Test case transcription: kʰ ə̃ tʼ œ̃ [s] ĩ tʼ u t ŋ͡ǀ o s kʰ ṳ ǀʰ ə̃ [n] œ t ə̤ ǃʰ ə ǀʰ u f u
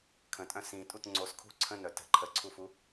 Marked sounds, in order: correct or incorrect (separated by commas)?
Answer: correct, correct